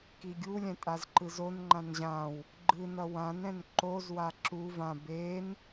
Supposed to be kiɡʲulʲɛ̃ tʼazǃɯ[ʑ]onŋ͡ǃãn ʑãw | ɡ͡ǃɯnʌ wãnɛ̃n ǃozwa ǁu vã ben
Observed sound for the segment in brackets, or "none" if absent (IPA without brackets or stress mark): z